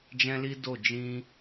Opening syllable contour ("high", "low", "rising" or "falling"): high